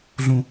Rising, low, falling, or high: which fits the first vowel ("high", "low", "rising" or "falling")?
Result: high